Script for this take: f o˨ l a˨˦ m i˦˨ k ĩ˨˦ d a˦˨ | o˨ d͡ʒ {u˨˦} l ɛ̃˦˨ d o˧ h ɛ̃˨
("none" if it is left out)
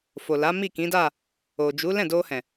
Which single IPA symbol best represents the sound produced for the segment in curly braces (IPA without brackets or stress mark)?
u˨˦